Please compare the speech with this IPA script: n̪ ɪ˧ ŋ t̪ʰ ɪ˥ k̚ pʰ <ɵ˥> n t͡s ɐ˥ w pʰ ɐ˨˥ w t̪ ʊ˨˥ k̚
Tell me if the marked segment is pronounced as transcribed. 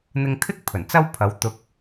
no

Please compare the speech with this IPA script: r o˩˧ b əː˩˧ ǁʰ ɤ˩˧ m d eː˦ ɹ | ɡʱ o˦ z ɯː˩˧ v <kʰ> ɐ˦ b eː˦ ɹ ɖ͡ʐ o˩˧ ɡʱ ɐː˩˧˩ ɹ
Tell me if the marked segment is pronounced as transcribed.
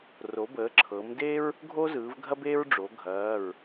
no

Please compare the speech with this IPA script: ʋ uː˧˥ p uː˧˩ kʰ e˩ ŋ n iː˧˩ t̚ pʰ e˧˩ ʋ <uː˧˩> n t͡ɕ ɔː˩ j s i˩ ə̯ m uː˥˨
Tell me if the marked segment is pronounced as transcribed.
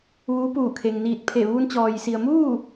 no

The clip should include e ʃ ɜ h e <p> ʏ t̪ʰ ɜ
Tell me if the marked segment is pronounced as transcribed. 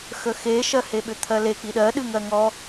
no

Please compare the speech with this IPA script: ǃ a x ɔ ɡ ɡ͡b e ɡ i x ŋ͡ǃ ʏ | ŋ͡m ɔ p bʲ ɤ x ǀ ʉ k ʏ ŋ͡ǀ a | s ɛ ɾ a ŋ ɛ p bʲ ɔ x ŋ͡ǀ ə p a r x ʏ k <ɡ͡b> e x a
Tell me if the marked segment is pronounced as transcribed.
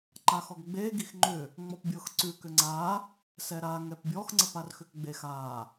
yes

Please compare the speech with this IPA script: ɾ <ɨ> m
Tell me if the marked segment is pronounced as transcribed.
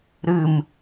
yes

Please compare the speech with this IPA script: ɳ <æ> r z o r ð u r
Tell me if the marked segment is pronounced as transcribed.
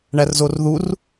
yes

